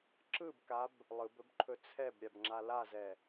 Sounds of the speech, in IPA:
ǁɯbkab | lˠɯbɵb ǃʰɵt͡sʰɛbɾʲab ŋ͡ǁalazɛ

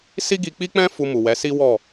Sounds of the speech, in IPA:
si˦ɡi˧k͡pi˦k͡pɛ̃˦ fu˧mu˨wɛ˨˦ si˦wɔ˦˨

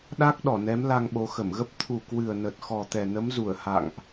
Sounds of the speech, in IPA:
ɗa˦˥k̚ɗɔ˧˩nɛ˨˦m la˧ŋɓo˨˦ xə˧˩mɣə˦˥p̚ t̪ʰu˨˩kwɨ˨˩ə̯nə˨˩t̚ xɔ˨˩t̪ɛ˨˩nə˨˦mzu˧˩ə̯ ha̰˧˨ŋʔ

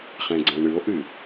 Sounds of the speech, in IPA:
χɛ̃ɡ͡ǀɛ̃ɳɨo̯ʔɨ

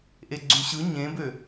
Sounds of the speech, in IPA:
ʔeɡ͡ǀyɕɯ ɲẽbø

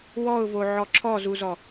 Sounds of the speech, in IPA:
wɔʊ̯voʕɔ ǁʰɔzuzɔ

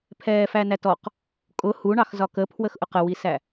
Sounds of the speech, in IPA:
pʰɛːfænætɔq | kʼʊ huɳɑx zɒkəpʰwəx ʔʊqəwisæ

